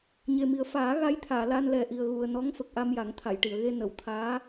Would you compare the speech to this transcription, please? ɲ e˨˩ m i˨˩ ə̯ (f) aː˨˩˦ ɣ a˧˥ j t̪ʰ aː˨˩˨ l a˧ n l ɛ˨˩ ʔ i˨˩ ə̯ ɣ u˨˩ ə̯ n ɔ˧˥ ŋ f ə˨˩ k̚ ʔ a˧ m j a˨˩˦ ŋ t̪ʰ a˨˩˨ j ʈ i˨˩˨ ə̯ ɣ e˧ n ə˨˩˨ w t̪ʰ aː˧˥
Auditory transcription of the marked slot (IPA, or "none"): f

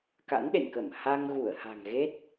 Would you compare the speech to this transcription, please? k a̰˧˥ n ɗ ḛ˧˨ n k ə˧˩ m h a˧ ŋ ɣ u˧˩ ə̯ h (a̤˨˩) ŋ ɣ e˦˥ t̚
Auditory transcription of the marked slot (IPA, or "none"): a̤˨˩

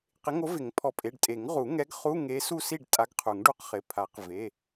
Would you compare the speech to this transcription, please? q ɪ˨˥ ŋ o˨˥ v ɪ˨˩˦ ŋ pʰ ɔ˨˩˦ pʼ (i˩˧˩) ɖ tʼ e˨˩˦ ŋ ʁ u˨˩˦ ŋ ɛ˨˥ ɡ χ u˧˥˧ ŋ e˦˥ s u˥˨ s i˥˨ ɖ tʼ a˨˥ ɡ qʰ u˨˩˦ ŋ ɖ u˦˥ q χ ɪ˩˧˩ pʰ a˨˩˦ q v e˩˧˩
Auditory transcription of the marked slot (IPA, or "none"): e˩˧˩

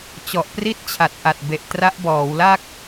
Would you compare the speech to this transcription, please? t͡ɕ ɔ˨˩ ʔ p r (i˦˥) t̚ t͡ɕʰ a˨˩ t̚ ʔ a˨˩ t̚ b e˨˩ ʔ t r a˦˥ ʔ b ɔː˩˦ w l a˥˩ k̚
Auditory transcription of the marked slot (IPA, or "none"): i˥˩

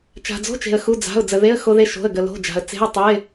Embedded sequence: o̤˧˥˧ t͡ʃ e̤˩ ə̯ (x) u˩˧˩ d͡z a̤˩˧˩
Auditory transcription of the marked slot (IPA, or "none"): x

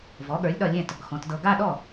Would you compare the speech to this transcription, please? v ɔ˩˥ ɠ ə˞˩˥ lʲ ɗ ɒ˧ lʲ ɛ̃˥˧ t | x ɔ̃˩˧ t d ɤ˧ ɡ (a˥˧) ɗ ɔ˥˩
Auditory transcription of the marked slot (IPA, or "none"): a˥˧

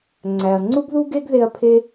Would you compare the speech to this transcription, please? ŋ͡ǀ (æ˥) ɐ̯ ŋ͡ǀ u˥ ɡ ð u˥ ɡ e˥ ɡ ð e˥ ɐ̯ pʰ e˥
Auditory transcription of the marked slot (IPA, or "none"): æ˨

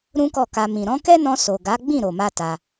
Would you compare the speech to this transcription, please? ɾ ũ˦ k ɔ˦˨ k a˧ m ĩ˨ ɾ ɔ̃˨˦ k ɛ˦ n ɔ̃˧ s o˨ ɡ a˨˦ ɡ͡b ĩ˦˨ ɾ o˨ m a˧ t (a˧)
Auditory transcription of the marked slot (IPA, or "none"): a˧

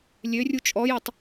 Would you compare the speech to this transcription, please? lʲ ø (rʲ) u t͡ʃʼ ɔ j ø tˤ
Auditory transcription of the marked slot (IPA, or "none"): rʲ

